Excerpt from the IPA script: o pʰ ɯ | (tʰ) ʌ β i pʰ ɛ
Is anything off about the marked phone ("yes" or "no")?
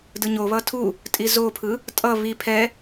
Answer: yes